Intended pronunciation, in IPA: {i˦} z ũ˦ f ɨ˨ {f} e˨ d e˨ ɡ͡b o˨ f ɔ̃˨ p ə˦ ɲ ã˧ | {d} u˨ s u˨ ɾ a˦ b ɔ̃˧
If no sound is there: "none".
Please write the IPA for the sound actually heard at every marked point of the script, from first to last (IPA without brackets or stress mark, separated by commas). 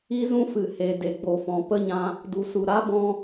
i˦, h, d